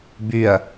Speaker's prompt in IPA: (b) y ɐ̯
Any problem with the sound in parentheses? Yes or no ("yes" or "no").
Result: no